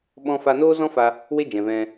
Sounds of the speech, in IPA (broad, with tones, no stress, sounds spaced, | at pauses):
ɓ ɔ̃˧ f a˧ n oː˦ z ɔ̃˦ f a˧ | w e˦ d͡ʒ ɛ̃˨ v ɛ̃˧